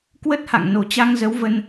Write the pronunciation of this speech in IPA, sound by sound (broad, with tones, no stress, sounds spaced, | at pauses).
k w ə˦˥ t̚ h a̰˧˨ ŋ n o˨˩ t͡ɕ a˧ ŋ z ə˨˦ w v ə˧ n